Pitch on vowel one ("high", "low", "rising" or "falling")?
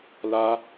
high